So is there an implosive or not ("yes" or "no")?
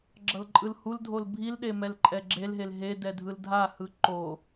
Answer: yes